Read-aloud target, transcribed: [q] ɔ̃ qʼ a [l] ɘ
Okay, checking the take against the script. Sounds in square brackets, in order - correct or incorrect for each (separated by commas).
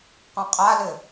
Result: correct, correct